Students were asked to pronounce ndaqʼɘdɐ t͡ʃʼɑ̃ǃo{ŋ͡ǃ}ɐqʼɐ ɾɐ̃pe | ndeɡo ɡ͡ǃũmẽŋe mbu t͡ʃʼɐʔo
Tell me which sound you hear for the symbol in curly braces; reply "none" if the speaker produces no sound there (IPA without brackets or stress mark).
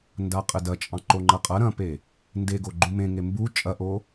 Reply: ŋ͡ǃ